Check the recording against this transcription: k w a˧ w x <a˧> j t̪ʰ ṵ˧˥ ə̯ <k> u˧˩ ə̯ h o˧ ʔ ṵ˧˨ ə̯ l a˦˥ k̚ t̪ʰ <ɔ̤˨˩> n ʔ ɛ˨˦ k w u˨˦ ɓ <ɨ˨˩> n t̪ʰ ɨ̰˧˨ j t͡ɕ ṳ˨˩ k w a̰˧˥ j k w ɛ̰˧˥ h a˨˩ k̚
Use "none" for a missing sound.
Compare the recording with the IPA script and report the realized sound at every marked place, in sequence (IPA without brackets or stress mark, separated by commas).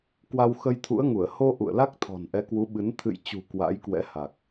ə˧, ŋ, ɔ̤˨˩, ɨ˨˦